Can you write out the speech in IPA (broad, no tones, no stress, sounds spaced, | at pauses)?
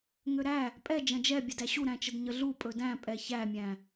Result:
ŋ ø ɾ æ | pʼ ɛ d͡ʒ ɐ̃ d͡ʒ ɛ bʲ ə d æ ɕ u ɾ æ̃ t͡ʃ ə d ɲ ə ɮ u pʼ ɵ d æ̃ pʼ ɛ ç æ mʲ æ̃